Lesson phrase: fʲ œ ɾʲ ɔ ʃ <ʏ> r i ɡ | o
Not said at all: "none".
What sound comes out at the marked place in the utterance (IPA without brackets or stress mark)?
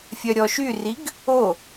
y